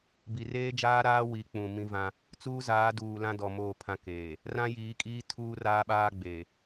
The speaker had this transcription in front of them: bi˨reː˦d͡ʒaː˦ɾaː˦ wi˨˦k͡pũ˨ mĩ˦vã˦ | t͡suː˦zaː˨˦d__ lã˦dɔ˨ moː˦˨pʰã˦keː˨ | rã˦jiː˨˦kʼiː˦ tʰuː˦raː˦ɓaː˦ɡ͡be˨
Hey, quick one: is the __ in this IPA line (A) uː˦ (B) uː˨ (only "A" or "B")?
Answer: B